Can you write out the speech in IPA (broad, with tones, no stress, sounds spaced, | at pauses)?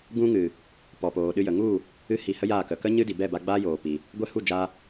ɡ ũ˦ ŋ ɨ˨ | p ɔ˨ p oː˨ ɗ ɨ˧ j ə˨ ŋ u˦˨ | ɨ˦ h i˧ h ə˦ j aː˦˨ k ə˨ k ə˦ ɲ ɨ˦ d i˨ b ɛ˦˨ b a˧ ɡ͡b aː˦ j oː˨ p i˨ | ɡʷ ɛ˦˨ h u˦˨ d͡ʒ a˧